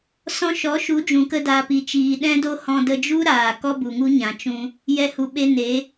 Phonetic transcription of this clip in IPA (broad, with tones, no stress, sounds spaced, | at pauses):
s ɔ̃˧ ʃ ɔ˨˦ ʃ u˨˦ d͡ʒ ũ˨ k ə˦ d a˨ p i˨ t͡ʃ iː˨ ɗ ɛ̃˦ d o˦ h ɔ̃˧ d ə˧ d͡ʒ u˦ ɾ aː˨ k ɔ˦ b u˨ ŋ u˦ ɲ ã˨ t͡ʃ ũ˧ | j ɛ˧ h u˨ ɓ e˧ n e˨˦